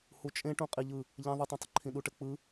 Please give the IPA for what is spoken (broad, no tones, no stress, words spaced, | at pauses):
hut͡ʃʼẽʈũ qʼiʎɯ | ʎɛ̃ ðˤətˤɛ̃tˤə ǃʰĩɗuʈə k͡pɯ